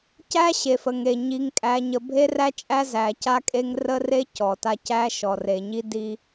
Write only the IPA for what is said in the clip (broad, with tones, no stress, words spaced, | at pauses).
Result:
cæ˦ɕe˨f ə˨ŋe˨ ɲi˨ŋkʼæ˨ɲə˨ bʱe˦ræ˦t͡ʃʼæ˦ zæ˨ca˦kʼe˦ŋ rə˦re˦ cɔ˨ta˦ cæ˦ʃɔ˨ re˨ɲi˦ di˦